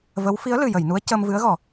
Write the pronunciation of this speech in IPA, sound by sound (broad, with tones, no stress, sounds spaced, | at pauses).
v ə˧˥ w f i˧˥ ə̯ l ɨ˨˩ j ə˨˩˨ j n u˧˥ ə̯ c əː˧ m v ɨ˧˥ ə̯ ɣ ɔ˨˩˦